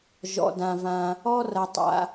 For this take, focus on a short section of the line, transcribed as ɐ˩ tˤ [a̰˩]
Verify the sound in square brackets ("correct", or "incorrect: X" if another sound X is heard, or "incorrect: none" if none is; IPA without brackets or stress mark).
correct